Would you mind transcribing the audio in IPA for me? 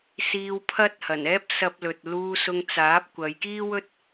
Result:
siː˧wpʰɐ˥t̚ hɐ˨˩nɛː˥p̚ sɐ˧p̚lɵ˨t̚ luː˧sʊ˧ŋ t͡saː˨˥p̚kʷɐ˨˧j kiː˥wɵ˥t̚

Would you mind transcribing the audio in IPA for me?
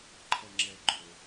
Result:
ǃʰʌŋ͡ǁɛɡ͡ǃʊ

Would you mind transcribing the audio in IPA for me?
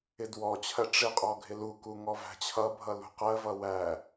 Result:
ɪdwɔt͡ɕʰɜ ʈ͡ʂɪqʼɔ ɡʱɪluku ŋɔvæ̤t͡ɕʰʌbʱʌ lṳqɜvʌ wæ

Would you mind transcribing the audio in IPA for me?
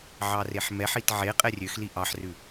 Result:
ʕɑreħmɛħit ʕe qʼɛrʲøxli ʔɑħrʉ

